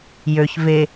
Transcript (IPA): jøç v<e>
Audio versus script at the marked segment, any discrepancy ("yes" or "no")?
no